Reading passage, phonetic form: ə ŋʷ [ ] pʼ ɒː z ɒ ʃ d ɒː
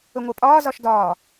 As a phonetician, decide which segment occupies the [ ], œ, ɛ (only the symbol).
ɛ